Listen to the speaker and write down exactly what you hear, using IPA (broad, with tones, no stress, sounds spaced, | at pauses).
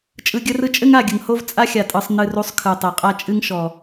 t͡ʃʼ ɯ˨ ɡʲ ə˧ r ɯ˧ t͡ʃʼ ɘ˦ ŋ a˦˨ ɡʲ ə˨ ŋ h o˦ v t͡sʼ a˦ xʲ a˨ tʼ ɯ˨ sˤ n ɨ˧ r u˧ sˤ kʰ ɯ˨ tˤ e˨ qʼ a˦ t͡ʃʼ ɨ˦ ŋ ʃ ɔ˨